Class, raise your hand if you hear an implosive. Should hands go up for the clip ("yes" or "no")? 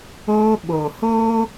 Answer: yes